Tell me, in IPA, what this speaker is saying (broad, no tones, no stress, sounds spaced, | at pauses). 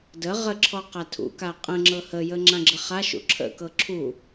d ə ʁ ə ǁʰ ɔ q a tʰ ṵ k a qʼ ə̃ ŋ͡ǁ ɤ h ə j ə ŋ͡ǁ ã ɡ͡ǁ ə χ a ʃ ṵ ǁʰ ə̰ k ɤ ǁʰ u